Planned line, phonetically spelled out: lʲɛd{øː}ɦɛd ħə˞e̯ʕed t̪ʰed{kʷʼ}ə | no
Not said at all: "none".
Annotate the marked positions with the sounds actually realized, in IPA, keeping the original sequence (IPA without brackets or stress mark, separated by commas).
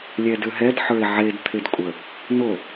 ø, kʷʼ